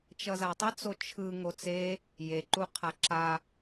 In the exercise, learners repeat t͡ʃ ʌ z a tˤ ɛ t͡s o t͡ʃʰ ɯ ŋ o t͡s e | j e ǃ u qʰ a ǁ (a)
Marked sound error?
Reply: no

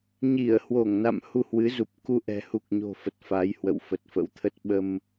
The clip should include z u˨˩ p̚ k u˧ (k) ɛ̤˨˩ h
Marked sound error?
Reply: yes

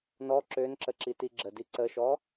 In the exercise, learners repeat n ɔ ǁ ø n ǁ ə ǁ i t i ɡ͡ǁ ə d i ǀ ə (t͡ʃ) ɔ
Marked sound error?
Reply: yes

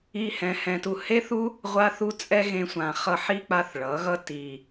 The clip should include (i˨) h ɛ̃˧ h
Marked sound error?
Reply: yes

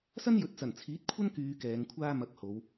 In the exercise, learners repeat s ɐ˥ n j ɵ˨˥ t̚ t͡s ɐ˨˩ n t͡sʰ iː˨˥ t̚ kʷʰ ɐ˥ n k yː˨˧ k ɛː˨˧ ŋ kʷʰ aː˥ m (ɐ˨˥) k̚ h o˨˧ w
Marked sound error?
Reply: no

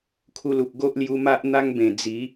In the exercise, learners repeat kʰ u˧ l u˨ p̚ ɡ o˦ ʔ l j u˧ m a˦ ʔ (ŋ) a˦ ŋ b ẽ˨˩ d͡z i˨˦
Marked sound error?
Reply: yes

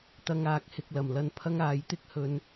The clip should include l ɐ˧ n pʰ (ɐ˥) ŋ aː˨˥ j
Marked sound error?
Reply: no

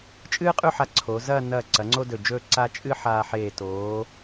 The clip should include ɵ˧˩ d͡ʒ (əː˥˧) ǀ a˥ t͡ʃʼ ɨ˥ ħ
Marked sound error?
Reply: yes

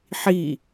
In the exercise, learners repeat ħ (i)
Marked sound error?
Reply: no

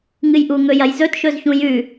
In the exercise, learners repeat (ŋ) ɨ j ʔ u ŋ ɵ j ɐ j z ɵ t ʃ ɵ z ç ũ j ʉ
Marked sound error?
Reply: no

